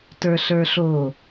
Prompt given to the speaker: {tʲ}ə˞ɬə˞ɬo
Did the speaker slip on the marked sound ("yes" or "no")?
yes